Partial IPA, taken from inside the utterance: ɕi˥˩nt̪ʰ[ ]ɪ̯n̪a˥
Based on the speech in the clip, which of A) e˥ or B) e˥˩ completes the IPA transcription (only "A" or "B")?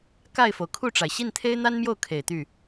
A